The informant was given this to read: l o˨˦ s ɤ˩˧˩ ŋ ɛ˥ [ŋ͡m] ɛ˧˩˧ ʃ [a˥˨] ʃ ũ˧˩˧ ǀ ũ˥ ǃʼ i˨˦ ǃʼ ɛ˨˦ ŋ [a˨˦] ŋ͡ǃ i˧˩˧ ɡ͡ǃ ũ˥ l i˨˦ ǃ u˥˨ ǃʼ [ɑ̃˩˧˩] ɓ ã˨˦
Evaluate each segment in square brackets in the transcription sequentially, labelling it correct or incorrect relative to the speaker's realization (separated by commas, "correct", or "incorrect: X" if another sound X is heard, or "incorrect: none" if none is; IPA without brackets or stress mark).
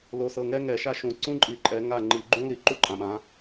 incorrect: ŋ, correct, incorrect: a˥˨, incorrect: ã˩˧˩